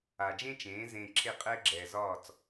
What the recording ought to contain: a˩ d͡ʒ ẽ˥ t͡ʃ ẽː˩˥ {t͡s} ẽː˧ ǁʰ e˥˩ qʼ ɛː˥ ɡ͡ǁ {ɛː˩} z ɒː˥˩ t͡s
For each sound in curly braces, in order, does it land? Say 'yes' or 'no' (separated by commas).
no, yes